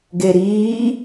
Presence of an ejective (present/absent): absent